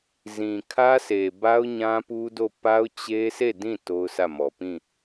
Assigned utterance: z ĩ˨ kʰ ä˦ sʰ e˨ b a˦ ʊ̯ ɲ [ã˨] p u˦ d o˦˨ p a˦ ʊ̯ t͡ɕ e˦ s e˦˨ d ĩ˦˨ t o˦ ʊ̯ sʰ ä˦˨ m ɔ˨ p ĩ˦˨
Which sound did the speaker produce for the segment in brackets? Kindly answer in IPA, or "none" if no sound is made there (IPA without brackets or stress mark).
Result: ã˦